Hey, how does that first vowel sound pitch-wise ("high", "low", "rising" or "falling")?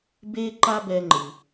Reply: high